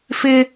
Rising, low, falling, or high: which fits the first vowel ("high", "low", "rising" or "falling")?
high